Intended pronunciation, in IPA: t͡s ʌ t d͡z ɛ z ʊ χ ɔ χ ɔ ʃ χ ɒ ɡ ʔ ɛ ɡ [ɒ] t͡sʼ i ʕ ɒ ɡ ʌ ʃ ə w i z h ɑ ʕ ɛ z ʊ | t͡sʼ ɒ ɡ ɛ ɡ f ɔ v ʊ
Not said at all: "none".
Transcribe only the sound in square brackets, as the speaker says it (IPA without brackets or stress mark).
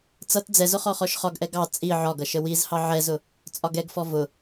ɑ